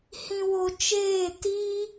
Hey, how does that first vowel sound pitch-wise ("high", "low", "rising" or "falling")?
low